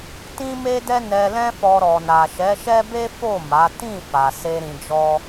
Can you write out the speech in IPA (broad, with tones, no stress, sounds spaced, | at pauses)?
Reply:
t ĩ˦ m e˦ d ɛ˦ n ɛ˧ l ɛ̃˦ f ɔ˧ ɾ ɔ˨ n a˨ ʃ ɛ˨˦ ʃ ɛ˦ b e˦ f o˦˨ m a˨˦ t ĩ˦˨ f a˨ s e˧ ɾ ĩ˧ d͡ʒ ɔ˦